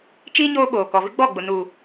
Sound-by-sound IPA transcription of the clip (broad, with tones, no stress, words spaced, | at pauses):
t͡ʃiː˦ ɲoː˦ɓoː˨ kɔ˨vɪ˦ɡ͡bɔ˦˨ɡ͡bʊ˨ nu˨